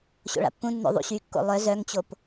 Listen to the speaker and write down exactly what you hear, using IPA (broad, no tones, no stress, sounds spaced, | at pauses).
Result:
ɕ o̰ ɭ a̰ pː ũ nː o̰ ðˤ ṵ ɕ y kː o̰ lˠ œ z œ ŋ t͡ɕ o p